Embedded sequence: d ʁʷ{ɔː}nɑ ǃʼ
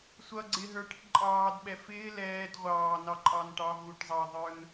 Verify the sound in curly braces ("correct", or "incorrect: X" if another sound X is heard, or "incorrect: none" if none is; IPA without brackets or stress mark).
incorrect: ɑː